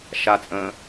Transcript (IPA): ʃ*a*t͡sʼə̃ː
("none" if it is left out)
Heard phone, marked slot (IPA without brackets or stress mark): a